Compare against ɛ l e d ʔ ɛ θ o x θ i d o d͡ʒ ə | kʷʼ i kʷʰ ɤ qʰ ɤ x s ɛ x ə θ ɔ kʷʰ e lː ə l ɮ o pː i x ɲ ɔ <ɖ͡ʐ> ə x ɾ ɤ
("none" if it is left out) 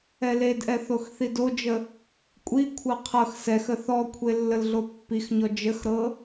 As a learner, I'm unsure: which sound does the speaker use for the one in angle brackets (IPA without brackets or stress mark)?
d͡ʒ